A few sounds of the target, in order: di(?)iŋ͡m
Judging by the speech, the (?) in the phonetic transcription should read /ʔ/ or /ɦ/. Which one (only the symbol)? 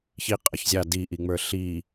ʔ